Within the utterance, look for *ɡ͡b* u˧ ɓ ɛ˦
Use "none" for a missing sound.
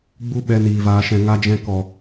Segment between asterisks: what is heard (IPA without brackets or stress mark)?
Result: ɡ͡b